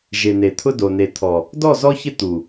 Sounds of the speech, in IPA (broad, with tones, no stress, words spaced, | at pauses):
ʒe˨ne˨t̪ʰʊ˦do˨ ne˨t̪ʰɔ˨ | dɔ˦˨zɔ˦çɪ˦ t̪u˨